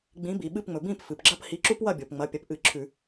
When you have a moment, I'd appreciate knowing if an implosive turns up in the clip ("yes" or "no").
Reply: yes